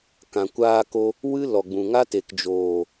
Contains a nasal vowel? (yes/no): yes